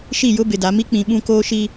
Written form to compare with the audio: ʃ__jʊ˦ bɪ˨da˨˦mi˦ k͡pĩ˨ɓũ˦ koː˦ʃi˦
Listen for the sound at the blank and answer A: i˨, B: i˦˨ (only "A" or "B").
B